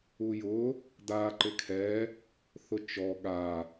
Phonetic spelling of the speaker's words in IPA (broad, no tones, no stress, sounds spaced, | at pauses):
u j ʊ | d a ǃ ɪ kʰ ɛ | θ ʊ t͡ʃ ɔ ɠ a